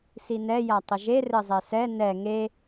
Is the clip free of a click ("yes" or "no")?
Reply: yes